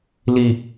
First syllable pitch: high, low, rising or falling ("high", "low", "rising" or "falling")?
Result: low